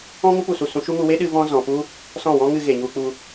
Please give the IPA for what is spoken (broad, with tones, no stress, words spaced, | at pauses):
ɔ̃˦ŋu˦ pu˦˨su˦˨ sũ˧ʃu˦ŋu˧ we˦ ɗɨ˧ vɔ̃˦ zɔ̃˨ pu˦ | sɔ̃˦˨wɔ̃˦ŋɨ˧ ɣe˨ɲu˧k͡pu˧